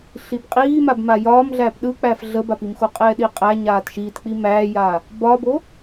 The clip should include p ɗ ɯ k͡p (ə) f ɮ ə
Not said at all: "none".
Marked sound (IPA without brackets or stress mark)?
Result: æ